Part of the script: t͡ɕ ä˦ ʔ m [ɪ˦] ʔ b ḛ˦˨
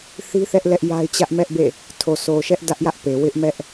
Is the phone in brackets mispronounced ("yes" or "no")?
yes